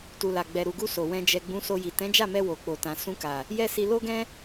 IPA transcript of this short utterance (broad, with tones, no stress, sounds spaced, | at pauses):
t u˨ l a˨ ɡ͡b ɛ˨ ɾ u˨ ɡ u˧ s o˨ w ɛ̃˧ d͡ʒ ɛ˨ ɡ͡b ũ˨˦ s o˧ j i˨ t ɛ̃˨˦ d͡ʒ a˦˨ m ɛ˧ w o˨ k͡p o˨ t ã˨ s ũ˧ k a˨ | j ɛ˦ s i˧ l o˦ ɡ ɛ̃˦